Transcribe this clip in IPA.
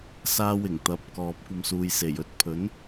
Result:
s aː˥ w ɪ˨˩ ŋ t̪ ɐ˨˥ p̚ k ɔː˨ p̚ kʷ ɐ˧ m s uː˨ j s e˨˩ j ɵ˨˥ t̚ pʰ ɵ˨˥ n

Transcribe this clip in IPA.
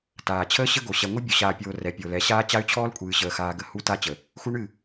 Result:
t aː˨ t͡ɕʰ əː˦ ɕ ə˦ ɡ o˨ ɕ ɛ˨ ŋʷ ɨ˦ bʲ ɔ˨ ɕ aː˨ pʲ oː˨ r ɛ˨ pʲ o˨ l ɛ˨˦ ɕ aː˦ t͡ɕ a˦ y̯ t͡ɕʰ ɔː˦ l kʷʼ ɨː˨ ɕ əː˨ x aː˦ ɡ ə˦ h u˦ t a˦ t͡ɕ ə˨ | x u˦ ɳ ɨ˦˨

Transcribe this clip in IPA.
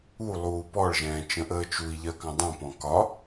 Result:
u lˠ uː p ɔ ɭ ʒ ɛ̃ː t͡ʃ ə̃ ʔ əː t͡ʃ u i̯ ʎ ɜ k ɑ̃ dˤ ũ p ɔ̃ k ɒ

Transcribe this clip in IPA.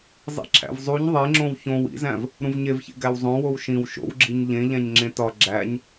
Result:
zˤ ḭ ǁʰ æ̰ v zˤ u ɲ ðˤ e ŋ͡ǁ õ w ç õ w ḭ z æ̃ v | ɾ ũ v ɲ e v ç ḛ ɡ æ w zˤ õ w o w ʃ ĩ w ʃ o̰ w ɡ͡ǁ i ɲ ʎ ẽ ʎ æ̃ ɲ ŋ͡ǁ ẽ t ɒ ɡ͡ǁ æ ɲ

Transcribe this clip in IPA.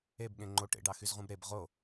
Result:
e b ɠ ẽ ŋ͡ǃ o ʈ ḛ ɖ ɑ x y z ʁ ũ b ɾ e b ʁ o

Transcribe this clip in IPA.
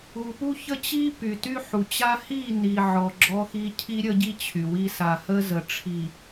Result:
u˨ p u˦ ç ə˦ t͡ɕ i˦ p y˨ t y˦ ħ u˨ t͡ɕ a˦ h i˦˨ n i˨ ʕ ɔ˨ ɡ͡ǁ ɔ˦ x i˦ cʰ i˦ ɾʲ ə˦ ɟ i˦ t͡ɕʰ y˨ w i˦ s a˨ h ə˦ z ə˨ ʈ͡ʂʰ i˨

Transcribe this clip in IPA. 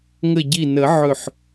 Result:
ŋ ə˧˩ ɟ i˧˩ n ə˨˩˦ ʕ ɵ˧˩ ħ

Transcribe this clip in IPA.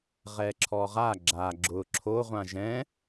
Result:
ʁ ɛ ǁʰ ɔ ʁ a ɡ͡ǁ a ɡ͡ǁ ʊ ǁʰ o ʁʷ ã ʒ ɛ̃

